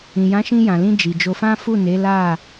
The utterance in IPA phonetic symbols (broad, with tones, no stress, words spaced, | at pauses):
ĩ˨jã˨˦ʃĩ˧ jã˨lĩ˧ d͡ʒi˨d͡ʒo˧fã˦ fu˦˨ne˨˦ la˦˨